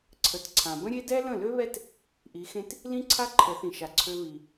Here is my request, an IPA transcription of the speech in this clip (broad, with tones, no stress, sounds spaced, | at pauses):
ǀʰ ə˨ t ǀʰ ã˨ b ə̃˦ ɾʲ e˦ d ɛ˦ l ə̃˦˨ l ø˦ β ɛ˦ t | ʔ i˨˦ x ẽ˦ t | l ĩ˦ ǀʰ a˦ ǃʰ ə˨˦ θ ĩ˨ ʃ a˨ ǀʰ ø˧ β i˨